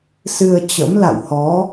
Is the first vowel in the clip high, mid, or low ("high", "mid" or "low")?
high